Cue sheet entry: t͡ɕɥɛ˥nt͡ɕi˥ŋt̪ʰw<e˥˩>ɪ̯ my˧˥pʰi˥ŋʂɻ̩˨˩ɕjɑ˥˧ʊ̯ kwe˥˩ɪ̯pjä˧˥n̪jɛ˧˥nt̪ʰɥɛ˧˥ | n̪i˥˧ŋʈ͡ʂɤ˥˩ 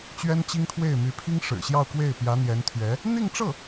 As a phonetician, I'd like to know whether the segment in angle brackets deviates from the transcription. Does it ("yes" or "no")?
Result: no